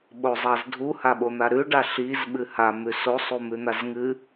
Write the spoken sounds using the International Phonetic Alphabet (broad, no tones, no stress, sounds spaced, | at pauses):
ɓ o zˤ a z dʱ u h a ɓ o n̪ a ɾ ʉ ɖ a ɬ i z ɓ ɨ h a m ʉ s o sˤ u m ʉ n̪ a z ŋ ɨ